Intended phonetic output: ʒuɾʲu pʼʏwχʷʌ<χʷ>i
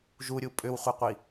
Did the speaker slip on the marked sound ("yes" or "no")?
yes